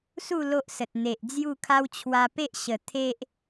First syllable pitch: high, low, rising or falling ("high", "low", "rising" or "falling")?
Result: falling